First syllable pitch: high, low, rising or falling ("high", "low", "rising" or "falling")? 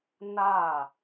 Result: falling